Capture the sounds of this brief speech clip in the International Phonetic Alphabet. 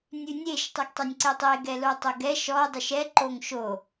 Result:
nʲʉnʲeʃ tˤʉɡtˤɛnʲǀetˤe ɡɛlotˤoɡɛ ʃɔ dˤʉʃɛ ǃoŋʃo

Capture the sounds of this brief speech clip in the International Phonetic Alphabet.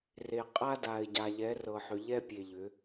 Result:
re˨ qʼa˦da˨ɪ̯ ɟa˨ʎɛ˨˦rɤ˨ħʏ˨ ʎɛ˦pʲe˨ʎʏ˨˦

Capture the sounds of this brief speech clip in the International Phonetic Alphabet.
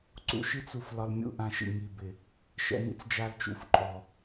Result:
ǀṵ˧ʃi˦t͡su˧f lɒ˧lmʲṵ˧ʔã˧ʃḭ˨ ŋi˨bɪ˨ | ʃɛ̰˧nḭ˧t͡s d͡ʒa˧lt͡ʃṵ˨fǃʼɔ˨

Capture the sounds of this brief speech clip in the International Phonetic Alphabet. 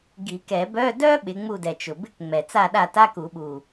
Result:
ɡi˨˩˦kɛ˨˩˦bœ˧˥˧ dœ˥ ɓɪ˨˦ŋ͡mu˦˨dɛ˨˩t͡ʃʊ˨˩ bɪ˧˥˧kŋ͡mɛ˨˩t͡sa˦˨ ɗa˦˨ta˧˥˧ku˨˩˦ɓu˨˩

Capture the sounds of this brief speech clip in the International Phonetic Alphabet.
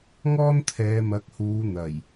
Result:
ŋɔː˥nt̪ʰɛː˨˧mɐ˨˥k̚huː˨˧ n̪ɐ˨˩j

